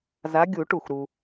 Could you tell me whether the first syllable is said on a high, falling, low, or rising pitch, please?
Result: rising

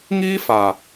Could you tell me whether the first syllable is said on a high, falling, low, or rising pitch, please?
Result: high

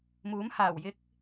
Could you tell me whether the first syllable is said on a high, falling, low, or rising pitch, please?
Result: rising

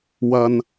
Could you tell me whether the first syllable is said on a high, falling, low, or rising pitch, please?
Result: low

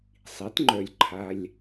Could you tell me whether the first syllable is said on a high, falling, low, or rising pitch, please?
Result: rising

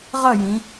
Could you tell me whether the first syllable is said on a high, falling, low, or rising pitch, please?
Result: falling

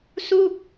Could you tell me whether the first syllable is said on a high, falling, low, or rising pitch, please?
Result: falling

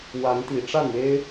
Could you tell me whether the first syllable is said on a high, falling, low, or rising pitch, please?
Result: rising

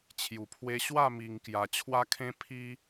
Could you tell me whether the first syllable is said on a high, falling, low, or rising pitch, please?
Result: low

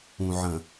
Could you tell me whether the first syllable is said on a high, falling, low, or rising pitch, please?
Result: low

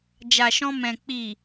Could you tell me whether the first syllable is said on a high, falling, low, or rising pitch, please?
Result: low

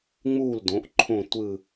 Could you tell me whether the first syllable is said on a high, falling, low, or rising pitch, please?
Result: falling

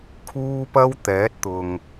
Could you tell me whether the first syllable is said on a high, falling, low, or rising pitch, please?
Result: high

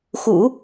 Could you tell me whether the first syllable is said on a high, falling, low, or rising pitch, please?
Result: low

